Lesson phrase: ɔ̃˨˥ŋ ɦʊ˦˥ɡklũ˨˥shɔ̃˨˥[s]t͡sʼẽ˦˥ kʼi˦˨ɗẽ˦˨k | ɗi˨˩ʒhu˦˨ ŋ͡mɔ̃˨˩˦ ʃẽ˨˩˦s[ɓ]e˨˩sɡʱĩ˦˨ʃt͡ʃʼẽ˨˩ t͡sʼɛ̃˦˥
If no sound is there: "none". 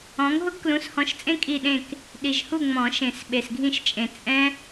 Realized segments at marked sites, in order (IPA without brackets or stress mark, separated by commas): ʃ, ɓ